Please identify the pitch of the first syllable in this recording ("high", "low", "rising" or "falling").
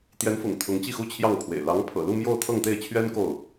rising